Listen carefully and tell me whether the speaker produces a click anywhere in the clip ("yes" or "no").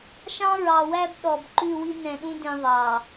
yes